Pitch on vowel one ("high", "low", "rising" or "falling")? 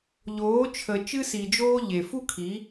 rising